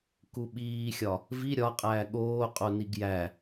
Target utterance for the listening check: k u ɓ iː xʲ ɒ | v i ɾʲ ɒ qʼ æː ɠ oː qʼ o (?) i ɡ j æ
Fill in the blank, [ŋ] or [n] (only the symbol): n